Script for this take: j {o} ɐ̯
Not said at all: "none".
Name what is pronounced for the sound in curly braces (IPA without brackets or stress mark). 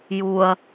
u